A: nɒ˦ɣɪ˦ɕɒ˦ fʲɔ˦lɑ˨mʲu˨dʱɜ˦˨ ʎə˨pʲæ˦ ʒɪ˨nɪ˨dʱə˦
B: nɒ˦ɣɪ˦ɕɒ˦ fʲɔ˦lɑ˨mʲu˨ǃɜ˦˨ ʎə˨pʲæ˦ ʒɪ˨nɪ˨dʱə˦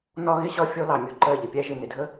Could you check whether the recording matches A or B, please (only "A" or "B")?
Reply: B